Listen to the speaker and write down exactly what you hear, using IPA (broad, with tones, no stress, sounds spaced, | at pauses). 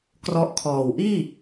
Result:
k r ɔ˦˥ ʔ kʰ ɔː˨˩ w ʔ iː˥˩